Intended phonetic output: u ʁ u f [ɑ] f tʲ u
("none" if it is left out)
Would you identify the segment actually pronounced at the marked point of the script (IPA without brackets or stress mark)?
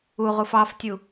ɑ